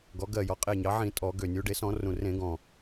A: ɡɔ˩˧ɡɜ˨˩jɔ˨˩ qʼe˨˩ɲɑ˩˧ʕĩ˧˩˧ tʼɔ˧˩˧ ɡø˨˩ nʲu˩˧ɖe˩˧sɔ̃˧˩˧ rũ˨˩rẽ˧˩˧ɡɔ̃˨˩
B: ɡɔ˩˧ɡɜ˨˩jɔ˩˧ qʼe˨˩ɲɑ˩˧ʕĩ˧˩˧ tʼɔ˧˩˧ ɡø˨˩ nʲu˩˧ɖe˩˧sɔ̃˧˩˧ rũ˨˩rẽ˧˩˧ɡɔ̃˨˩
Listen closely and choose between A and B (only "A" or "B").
B